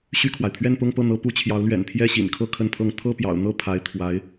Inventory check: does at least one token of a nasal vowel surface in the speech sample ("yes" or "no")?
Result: no